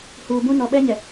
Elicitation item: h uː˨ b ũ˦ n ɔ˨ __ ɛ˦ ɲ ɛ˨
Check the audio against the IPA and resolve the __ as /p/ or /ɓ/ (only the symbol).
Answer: ɓ